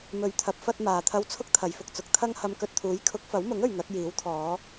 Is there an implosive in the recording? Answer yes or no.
no